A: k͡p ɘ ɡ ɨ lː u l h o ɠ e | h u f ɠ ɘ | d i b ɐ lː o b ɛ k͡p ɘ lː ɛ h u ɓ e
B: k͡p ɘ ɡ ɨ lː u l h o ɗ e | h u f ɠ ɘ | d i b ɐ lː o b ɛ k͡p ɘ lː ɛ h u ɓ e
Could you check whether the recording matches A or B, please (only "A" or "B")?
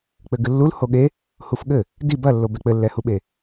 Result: A